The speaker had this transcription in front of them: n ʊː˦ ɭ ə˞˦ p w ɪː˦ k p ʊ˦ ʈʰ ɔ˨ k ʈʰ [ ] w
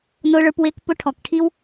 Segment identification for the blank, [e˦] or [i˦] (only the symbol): i˦